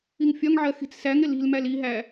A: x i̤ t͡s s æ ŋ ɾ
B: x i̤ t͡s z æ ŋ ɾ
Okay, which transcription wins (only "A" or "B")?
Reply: A